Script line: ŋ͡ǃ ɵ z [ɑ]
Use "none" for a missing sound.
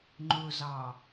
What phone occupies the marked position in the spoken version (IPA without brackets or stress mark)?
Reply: ɑ